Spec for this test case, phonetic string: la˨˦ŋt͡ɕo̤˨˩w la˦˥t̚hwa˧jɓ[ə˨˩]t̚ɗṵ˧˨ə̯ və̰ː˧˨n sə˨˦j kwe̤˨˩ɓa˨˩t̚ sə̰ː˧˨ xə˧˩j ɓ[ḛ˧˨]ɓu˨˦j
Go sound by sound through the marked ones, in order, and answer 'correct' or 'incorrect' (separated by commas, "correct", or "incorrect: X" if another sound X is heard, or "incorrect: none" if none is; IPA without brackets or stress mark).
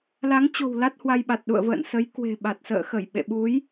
incorrect: a˨˩, correct